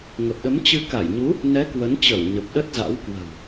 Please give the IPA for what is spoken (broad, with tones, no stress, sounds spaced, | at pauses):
ŋ ə˨˩ p̚ ɗ ə˨˦ m t͡ɕ ɨ˧ k a˧˩ j ɲ u˨˦ | n ɛ˨˦ k w ə˨˦ n t͡ɕ ə˧˩ w ɲ ə˨˩ p̚ ɗ ə˦˥ t̚ z a̰˧˥ w k w ə̤˨˩ w